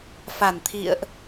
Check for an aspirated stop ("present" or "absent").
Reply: present